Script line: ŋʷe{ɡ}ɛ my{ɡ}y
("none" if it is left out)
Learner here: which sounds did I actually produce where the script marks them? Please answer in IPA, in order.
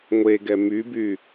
ɡ, b

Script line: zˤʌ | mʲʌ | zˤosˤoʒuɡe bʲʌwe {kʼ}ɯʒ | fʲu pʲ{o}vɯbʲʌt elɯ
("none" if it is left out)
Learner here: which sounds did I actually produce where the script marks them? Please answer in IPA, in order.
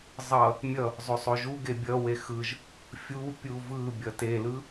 x, u

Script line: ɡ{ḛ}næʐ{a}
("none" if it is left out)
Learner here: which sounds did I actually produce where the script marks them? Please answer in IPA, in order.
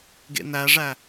ḛ, æ

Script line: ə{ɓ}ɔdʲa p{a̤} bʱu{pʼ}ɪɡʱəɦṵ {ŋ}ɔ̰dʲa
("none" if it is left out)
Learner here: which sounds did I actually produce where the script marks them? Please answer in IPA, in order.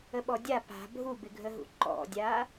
ɓ, a̤, b, ǃ

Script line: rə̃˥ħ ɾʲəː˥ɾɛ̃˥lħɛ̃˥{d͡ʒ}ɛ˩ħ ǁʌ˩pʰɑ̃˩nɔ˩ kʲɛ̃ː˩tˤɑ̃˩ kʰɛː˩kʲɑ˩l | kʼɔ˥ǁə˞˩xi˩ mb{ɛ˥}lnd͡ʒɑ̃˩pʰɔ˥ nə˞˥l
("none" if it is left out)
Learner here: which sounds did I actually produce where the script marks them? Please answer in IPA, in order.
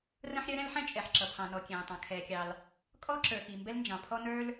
t͡ʃʼ, ɛ˥

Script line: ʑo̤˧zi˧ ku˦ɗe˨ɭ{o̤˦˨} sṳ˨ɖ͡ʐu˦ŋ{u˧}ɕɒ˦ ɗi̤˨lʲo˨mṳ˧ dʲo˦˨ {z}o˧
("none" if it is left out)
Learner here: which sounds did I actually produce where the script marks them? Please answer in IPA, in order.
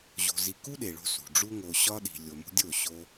o̤˧, o˧, ɕ

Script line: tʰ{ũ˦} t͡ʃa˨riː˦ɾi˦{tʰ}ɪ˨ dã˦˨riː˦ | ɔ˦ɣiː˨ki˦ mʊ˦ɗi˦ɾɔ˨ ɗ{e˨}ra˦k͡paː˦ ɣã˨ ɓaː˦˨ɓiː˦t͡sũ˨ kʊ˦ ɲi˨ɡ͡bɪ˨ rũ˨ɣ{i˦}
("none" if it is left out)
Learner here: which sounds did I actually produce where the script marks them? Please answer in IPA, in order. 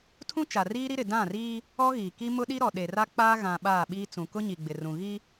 ũ˦, ɾ, e˨, i˦

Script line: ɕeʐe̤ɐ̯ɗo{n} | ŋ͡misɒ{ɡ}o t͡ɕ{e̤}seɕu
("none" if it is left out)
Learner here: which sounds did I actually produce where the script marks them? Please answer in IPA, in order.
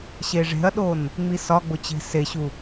n, ɡ͡b, e̤

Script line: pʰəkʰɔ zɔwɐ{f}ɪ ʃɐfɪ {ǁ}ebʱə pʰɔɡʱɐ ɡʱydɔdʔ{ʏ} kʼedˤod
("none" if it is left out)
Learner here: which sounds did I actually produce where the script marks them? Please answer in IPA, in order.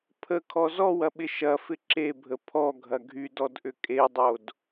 ɓ, ǁ, ʏ

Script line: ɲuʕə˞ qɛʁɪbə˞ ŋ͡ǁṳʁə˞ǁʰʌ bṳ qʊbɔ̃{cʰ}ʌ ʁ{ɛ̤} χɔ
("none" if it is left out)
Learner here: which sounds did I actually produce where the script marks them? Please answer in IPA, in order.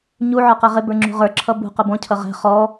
cʰ, ɛ̤

